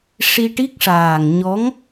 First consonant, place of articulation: retroflex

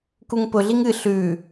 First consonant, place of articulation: velar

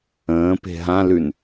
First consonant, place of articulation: labial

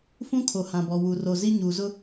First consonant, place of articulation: labial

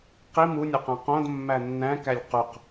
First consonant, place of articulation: uvular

